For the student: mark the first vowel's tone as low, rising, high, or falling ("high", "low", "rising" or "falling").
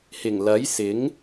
low